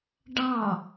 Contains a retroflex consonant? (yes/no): yes